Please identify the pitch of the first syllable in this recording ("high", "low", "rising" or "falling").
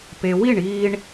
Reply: low